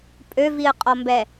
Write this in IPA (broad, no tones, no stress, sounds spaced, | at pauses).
pʼ ø v i ə̯ qʼ ɔ m b ɛ